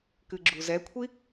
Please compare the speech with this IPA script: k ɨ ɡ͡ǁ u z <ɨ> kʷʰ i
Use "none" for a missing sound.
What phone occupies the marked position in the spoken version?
ɛ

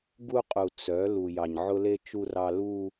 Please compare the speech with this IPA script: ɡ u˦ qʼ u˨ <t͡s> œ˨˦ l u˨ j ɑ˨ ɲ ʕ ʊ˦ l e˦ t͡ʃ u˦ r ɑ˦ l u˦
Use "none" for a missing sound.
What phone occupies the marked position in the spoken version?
t͡s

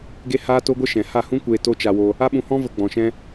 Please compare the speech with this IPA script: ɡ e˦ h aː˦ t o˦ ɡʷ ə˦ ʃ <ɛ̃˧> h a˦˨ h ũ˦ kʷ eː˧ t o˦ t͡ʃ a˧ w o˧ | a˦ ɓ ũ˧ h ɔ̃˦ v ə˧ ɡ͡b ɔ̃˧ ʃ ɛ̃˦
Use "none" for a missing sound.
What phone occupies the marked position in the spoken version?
ɛ̃˨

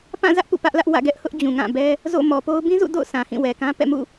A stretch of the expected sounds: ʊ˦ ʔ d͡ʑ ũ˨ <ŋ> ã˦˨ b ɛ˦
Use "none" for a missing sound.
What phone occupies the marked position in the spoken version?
ŋ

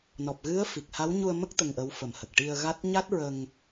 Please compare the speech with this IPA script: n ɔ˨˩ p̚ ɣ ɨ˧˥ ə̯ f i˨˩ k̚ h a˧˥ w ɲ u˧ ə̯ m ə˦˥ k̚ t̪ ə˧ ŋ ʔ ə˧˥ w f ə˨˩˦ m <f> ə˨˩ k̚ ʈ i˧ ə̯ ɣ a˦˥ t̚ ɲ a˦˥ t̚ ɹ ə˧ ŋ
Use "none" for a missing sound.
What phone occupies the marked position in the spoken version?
h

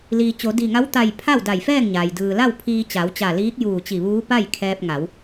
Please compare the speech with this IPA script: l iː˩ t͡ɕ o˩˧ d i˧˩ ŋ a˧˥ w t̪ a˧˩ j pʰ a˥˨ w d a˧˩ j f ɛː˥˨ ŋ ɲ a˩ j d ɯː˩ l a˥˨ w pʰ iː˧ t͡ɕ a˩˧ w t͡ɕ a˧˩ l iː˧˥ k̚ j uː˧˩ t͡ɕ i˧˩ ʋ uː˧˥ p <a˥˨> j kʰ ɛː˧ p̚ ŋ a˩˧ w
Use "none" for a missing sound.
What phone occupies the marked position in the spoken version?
a˥˨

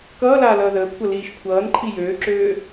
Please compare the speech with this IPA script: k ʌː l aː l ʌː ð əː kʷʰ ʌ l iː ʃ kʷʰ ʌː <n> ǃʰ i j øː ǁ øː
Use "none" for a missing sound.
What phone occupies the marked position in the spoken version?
n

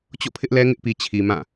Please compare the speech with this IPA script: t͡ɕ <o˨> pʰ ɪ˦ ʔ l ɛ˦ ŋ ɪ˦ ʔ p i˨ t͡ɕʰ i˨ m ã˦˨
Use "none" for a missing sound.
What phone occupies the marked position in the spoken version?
o̰˦˨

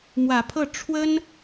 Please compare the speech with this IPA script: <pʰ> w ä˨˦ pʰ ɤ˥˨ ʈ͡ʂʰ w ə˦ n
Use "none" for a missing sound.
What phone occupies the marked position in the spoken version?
m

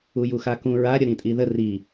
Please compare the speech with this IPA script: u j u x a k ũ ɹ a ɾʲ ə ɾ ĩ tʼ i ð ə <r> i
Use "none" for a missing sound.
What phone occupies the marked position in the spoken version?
r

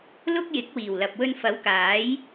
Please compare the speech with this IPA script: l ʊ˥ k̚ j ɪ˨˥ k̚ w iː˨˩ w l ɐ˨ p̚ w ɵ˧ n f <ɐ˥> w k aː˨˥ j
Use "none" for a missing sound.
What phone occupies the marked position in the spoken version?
ɐ˨˥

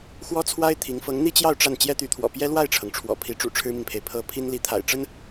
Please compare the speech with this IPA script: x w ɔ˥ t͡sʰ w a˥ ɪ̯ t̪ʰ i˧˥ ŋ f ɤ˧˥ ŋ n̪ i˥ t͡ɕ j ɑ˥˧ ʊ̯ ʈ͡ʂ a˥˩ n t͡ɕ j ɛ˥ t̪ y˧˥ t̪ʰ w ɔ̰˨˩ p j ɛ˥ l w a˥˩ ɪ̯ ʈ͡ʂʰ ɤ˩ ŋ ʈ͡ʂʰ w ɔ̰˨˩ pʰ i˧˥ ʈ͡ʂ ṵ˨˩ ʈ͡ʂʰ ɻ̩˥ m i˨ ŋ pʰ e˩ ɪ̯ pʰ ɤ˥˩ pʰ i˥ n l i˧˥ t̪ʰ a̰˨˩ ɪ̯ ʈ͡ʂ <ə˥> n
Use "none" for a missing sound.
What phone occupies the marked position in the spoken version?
ə˥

